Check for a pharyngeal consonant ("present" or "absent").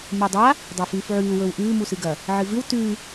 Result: present